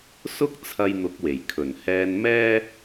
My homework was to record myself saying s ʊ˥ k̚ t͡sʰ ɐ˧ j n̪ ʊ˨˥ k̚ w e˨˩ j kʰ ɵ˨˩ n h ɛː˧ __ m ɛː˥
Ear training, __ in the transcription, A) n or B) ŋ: A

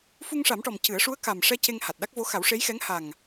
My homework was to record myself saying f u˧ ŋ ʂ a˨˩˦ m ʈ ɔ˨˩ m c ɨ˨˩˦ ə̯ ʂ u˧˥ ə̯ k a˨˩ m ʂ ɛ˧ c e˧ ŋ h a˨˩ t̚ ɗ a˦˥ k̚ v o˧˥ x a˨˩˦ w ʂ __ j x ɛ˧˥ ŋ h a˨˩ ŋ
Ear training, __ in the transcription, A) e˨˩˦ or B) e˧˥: B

